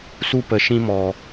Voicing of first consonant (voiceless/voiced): voiceless